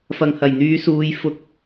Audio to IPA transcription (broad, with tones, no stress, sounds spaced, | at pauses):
f ɐ˨ ŋ h ɐ˨˩ j n̪ yː˨˧ s uː˨˧ j f ʊ˧ k̚